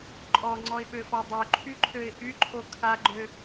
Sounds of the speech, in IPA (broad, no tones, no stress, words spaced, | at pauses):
ǃʼɔŋ͡ǀɔɪ̯ɓøfɔ dˤøǃʰyǃʰøɪ̯ ʔyǃʰo kʰaɡ͡ǃø